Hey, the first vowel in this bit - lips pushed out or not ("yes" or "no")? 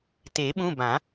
no